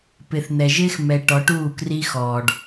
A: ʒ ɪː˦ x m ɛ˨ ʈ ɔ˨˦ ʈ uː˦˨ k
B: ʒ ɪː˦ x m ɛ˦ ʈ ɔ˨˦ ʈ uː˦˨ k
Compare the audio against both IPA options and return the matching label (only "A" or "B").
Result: A